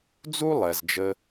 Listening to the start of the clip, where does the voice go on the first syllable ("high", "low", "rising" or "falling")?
high